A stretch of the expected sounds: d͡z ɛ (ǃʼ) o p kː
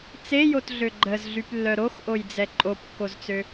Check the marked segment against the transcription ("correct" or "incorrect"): correct